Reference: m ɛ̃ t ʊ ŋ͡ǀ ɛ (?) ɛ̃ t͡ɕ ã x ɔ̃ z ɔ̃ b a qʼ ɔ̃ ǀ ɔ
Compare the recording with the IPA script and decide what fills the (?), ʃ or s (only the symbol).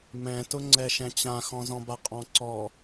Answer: ʃ